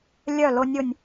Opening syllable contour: falling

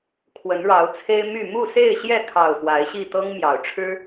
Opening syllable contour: rising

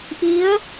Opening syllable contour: rising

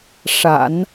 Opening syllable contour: low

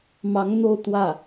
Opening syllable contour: rising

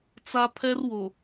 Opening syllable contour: high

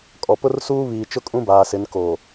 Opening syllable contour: low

